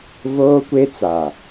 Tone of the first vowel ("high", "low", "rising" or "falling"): high